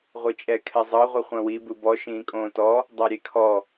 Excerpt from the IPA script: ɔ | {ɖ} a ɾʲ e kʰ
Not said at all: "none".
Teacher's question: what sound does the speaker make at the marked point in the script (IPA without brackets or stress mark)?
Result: dˤ